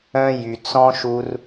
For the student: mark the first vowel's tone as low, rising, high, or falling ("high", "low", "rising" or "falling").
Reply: high